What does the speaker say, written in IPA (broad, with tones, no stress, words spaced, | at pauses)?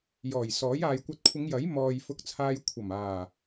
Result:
jɔː˨˩jsɔː˨˥j aː˨jkʷɐ˧t̚kʷʰɪ˨˧ŋjɐ˨˥j mɔː˨j fʊ˧k̚t͡sʰaː˧j kʷʰɐ˨˩maː˨˩